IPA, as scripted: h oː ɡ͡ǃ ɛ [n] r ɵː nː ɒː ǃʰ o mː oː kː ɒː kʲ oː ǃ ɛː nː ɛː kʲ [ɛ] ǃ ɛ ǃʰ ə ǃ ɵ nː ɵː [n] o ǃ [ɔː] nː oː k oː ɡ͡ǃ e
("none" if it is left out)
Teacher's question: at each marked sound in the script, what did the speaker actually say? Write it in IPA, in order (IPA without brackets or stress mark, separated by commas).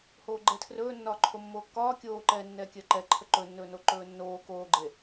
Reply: tʰ, ɜ, n, ɵː